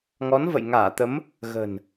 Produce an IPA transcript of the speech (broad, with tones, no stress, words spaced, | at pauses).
ŋɔ˨˦nvə̰˧˨j ŋaː˧˩t̪ə˨˦m | ɣə̤˨˩n